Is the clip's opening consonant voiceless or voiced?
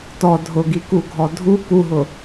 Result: voiceless